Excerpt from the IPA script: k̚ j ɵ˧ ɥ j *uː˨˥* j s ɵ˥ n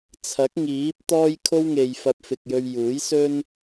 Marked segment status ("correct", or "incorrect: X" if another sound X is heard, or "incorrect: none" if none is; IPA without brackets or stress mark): correct